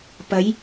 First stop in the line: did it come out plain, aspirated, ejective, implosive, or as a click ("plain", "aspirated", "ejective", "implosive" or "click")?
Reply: plain